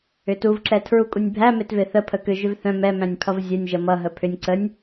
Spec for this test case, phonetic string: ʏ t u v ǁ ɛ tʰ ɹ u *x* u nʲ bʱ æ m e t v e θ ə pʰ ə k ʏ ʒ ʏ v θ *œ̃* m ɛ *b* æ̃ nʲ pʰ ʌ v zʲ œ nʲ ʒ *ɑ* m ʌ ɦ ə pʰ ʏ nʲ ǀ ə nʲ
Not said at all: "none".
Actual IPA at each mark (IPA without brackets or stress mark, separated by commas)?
kʼ, œ̃, m, ʌ